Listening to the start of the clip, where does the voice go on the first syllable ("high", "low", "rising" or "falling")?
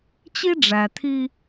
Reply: high